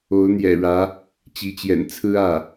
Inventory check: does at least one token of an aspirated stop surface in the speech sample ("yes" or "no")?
yes